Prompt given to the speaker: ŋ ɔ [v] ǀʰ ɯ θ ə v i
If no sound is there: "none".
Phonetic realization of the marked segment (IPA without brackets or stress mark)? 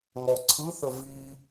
none